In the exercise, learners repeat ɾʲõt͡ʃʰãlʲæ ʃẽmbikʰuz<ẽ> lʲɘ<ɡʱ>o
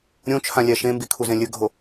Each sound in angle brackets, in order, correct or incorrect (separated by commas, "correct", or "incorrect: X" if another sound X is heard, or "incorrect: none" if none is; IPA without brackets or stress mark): correct, correct